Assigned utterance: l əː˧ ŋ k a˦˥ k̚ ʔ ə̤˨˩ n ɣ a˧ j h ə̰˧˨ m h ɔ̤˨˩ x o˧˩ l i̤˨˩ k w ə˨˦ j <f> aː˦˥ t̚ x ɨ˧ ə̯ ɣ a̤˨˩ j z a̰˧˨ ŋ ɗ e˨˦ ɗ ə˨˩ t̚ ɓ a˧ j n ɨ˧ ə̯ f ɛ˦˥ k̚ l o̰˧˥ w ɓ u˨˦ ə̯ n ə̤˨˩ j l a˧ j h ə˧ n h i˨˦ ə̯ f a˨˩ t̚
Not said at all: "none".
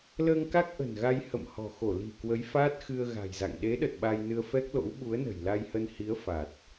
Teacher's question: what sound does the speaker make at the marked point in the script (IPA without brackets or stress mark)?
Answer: f